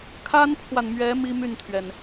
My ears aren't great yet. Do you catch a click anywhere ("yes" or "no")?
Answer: no